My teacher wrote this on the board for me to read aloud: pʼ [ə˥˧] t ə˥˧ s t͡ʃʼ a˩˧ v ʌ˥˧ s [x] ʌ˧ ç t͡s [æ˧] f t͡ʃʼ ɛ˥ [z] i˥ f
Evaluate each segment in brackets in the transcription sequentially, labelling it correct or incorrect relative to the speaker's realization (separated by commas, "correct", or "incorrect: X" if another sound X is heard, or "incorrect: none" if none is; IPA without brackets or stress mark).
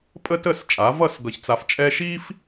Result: incorrect: ə˥, incorrect: ɡ, incorrect: a˧, incorrect: ʃ